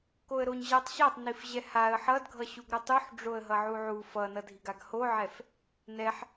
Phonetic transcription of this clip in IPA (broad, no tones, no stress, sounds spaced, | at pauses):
k o ə̯ ɾ o ɲ ʑ a tˤ ɕ a tˤ n i f ʑ ɛ h a ə̯ ħ ʌ d ɡʱ ʌ ɕ u ɡ ɾ o tˤ u ħ ɖ͡ʐ o ə̯ ɦ ʌ ʕ u ʕ u f ʌ n ʌ dʱ i ɡ a ɡ h o ʕ ɛ f | n ɛ ħ